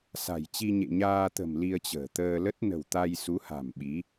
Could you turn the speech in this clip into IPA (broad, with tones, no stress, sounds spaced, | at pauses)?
s a̤˨˩ j t͡ɕ i˧ ɲ ḛ˧˨ ɲ aː˧ t̪ ə̤˨˩ m l i˧ ə̯ t͡ɕ ə̤ː˨˩ t̪ əː˧ l ə˦˥ t̚ n ə̤˨˩ w t̪ a˧ j s u˨˦ h a̤˨˩ m ɓ i˨˦